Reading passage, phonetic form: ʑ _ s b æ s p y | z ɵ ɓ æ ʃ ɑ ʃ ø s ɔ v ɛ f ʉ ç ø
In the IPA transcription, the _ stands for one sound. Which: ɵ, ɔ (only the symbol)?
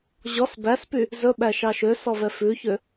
ɔ